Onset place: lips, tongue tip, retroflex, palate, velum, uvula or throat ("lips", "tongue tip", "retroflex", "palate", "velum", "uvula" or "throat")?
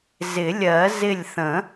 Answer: tongue tip